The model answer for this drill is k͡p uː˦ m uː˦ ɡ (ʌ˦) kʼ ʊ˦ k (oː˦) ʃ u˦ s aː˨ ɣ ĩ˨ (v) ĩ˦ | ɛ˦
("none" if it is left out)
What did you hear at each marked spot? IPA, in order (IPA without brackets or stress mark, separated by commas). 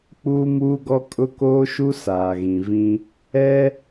ɔ˦, oː˦, v